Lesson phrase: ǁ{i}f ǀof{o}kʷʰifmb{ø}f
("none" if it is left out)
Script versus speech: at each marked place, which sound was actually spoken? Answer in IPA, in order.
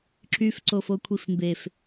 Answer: y, o, e

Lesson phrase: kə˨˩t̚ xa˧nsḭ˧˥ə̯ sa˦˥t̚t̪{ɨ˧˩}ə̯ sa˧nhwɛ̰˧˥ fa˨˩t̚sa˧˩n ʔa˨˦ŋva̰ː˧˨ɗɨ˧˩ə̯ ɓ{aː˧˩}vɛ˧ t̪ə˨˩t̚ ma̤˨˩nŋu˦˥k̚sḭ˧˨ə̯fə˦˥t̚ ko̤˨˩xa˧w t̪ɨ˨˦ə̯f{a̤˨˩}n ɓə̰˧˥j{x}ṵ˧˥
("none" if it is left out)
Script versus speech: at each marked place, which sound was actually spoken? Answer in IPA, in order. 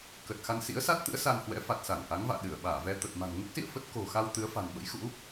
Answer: ɨ̰˧˥, aː˧˩, a̤˨˩, x

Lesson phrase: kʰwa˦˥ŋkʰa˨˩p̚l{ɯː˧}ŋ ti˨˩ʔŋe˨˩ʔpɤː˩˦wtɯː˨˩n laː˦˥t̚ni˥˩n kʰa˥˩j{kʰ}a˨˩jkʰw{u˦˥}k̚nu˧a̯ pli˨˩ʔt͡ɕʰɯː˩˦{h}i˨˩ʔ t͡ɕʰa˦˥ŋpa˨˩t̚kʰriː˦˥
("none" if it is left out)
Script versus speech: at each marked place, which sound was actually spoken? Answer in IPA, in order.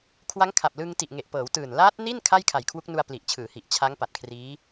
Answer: ɯ˧, kʰ, u˦˥, h

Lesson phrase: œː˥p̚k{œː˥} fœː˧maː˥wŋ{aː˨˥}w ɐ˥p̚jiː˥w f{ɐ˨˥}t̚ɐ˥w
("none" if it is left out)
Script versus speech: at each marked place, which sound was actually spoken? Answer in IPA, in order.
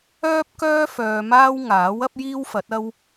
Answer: œː˥, aː˨˥, ɐ˨˥

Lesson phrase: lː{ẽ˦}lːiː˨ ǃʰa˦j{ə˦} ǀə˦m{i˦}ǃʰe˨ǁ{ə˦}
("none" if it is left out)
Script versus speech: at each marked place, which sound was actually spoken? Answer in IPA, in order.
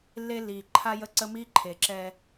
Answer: e˦, ə˦, i˦, ɛ˦

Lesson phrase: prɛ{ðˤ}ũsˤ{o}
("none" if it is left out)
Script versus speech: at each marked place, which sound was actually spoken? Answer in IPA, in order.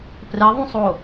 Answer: ðˤ, o

